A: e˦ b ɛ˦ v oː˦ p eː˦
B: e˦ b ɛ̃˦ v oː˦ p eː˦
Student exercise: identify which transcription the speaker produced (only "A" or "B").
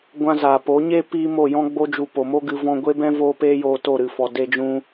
B